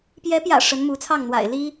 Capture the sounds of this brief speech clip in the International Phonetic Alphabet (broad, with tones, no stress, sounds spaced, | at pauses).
p j ɛ˧˥ p j ä̰˨˩ ʂ ə˧˥ n m u˧˥ t͡sʰ ɑ˥˩ ŋ n̪ w a̰˨˩ ɪ̯ l i˥